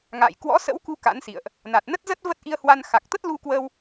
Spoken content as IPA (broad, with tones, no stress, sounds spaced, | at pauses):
ŋ a̰ː˧˨ j k w ɔ̰˧˥ s ə̰˧˥ w k u˧ k a̰˧˥ n s ḭ˧˨ ə̯ ʔ | n a˨˩ t̚ n ə˦˥ t̚ z ə˦˥ t̚ v ə˦˥ t̚ ʔ i˧ ə̯ h w a˧ n x a˨˩ k̚ t̪ ə˦˥ t̚ l u˧ k w ə˧ w